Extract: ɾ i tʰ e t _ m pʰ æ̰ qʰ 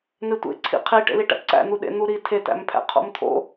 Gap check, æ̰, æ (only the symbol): æ̰